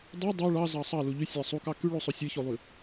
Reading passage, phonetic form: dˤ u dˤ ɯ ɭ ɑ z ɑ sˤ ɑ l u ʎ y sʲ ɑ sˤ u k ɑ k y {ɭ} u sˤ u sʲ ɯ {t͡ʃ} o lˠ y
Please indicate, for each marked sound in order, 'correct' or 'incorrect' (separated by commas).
correct, incorrect